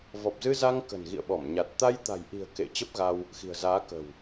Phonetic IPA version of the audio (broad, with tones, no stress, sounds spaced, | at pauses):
v ɔ˨˩ p̚ z ɨ˧ z a˧ ŋ k ə̤˨˩ n ɣ ḭ˧˨ ə̯ ɓ ɔ˧˩ m ɲ a˨˩ t̚ t̪ a˧ j t̪ a̤˨˩ j ʔ i̤˨˩ ə̯ k ḛ˧˨ t͡ɕ ə˦˥ p̚ ɣ a˧ w | x i̤˨˩ ə̯ z aː˨˦ k ə̤˨˩ w